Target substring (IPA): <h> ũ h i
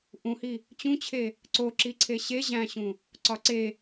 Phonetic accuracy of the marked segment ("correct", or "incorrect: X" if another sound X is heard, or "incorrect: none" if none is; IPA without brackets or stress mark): incorrect: ʔ